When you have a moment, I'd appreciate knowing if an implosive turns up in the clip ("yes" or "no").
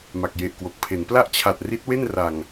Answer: no